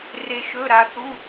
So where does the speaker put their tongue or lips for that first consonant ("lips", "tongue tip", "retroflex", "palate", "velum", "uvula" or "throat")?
tongue tip